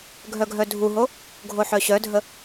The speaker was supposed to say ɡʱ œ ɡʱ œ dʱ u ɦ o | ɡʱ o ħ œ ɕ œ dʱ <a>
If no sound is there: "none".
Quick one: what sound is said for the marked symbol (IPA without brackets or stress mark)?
ə